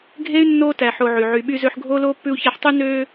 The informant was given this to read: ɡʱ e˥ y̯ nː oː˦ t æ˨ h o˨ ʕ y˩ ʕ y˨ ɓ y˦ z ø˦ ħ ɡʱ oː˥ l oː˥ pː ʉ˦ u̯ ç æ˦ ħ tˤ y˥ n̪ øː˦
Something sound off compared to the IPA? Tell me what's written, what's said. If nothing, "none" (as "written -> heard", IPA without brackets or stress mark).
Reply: h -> ħ